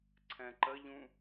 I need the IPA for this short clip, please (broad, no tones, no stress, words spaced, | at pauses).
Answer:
ǀʰɛ̃ǃəʎũ